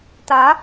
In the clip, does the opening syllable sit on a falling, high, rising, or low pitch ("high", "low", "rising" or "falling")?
rising